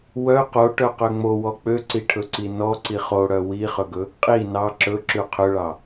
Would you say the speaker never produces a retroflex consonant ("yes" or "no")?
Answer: no